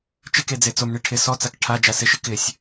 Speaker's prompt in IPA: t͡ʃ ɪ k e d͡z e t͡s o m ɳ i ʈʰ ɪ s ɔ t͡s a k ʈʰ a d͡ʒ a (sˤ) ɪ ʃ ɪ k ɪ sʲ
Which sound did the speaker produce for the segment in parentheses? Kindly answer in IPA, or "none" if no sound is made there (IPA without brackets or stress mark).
s